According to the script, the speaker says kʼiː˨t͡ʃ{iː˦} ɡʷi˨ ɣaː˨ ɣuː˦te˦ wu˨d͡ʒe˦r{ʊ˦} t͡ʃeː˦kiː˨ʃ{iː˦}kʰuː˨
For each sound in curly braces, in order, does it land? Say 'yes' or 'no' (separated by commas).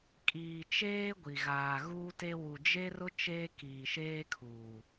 no, yes, no